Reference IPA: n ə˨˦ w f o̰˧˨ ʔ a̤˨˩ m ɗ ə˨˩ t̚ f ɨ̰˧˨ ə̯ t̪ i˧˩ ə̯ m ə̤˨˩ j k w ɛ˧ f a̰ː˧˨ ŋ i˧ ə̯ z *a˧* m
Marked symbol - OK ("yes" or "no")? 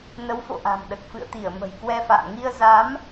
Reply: no